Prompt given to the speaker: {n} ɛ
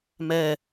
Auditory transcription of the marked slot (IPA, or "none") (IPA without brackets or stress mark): m